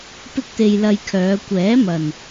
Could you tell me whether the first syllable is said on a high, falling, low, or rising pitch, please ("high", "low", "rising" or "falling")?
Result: high